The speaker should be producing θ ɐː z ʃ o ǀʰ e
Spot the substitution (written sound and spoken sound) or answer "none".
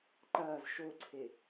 θ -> ǃ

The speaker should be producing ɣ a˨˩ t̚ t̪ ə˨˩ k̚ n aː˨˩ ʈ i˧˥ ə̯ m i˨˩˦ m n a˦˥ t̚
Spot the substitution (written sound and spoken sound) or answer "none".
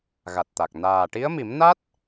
ə˨˩ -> a˨˩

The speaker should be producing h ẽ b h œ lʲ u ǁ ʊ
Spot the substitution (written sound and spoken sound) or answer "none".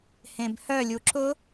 none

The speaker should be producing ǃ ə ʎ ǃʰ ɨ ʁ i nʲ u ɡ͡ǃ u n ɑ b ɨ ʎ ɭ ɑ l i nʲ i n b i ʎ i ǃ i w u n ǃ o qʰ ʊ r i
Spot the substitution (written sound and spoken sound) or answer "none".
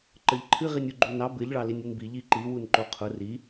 none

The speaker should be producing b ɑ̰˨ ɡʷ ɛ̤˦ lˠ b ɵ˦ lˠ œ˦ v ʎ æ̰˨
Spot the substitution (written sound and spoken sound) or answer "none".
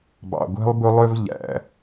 none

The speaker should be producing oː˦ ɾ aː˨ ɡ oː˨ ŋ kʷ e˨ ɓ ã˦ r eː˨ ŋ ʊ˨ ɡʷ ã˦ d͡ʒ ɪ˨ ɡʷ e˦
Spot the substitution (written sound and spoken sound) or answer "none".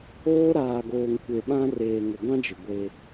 none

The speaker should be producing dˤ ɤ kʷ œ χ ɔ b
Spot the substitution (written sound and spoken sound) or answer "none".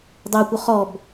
none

